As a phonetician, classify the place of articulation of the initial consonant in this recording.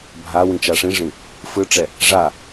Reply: labial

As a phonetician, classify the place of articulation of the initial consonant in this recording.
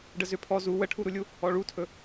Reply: retroflex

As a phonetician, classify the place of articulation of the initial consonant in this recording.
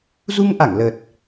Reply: alveolar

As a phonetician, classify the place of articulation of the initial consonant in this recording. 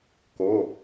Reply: velar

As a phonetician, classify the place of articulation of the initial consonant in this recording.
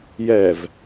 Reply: palatal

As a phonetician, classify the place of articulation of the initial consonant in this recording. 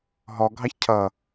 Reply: glottal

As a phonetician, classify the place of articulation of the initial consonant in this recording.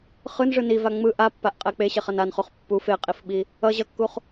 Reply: uvular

